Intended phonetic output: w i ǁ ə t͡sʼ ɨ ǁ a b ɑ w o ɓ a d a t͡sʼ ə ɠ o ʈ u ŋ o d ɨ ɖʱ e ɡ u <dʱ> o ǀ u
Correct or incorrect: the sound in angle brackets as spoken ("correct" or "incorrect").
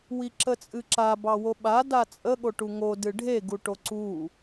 incorrect